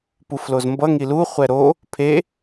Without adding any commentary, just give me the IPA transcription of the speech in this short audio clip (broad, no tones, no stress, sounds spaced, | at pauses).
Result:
p u f l o z m b ʌ ŋ i l u χʷ ɛ ɾ o | pʰ e